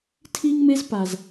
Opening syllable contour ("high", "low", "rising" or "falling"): high